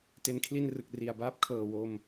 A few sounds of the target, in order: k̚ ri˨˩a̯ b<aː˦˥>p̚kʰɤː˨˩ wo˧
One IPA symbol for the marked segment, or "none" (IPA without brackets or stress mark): aː˦˥